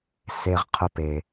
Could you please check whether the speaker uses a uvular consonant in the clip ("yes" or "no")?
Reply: yes